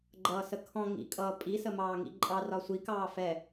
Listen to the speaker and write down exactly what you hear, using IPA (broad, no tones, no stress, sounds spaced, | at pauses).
ɡ͡ǃ ʌː s ə kʰ ɔ̃ ŋ ḭ kʼ ʌː pʼ i s ə m ɑː ŋ ḭ ǃʼ ɑ r ɒ sʷ i k ɑː f ɛ